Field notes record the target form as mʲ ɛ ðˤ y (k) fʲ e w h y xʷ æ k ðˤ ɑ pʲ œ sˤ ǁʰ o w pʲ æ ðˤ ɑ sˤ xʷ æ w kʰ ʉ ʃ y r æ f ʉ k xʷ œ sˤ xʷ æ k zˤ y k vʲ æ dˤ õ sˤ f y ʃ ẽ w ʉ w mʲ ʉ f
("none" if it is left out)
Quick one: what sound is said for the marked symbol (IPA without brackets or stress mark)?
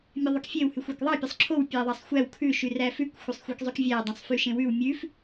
k